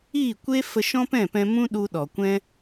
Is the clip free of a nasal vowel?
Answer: no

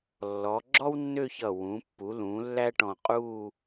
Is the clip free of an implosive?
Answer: yes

